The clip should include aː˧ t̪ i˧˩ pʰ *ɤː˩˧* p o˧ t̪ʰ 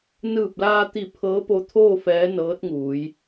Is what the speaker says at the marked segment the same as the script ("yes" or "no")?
no